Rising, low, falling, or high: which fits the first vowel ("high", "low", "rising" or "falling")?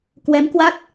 rising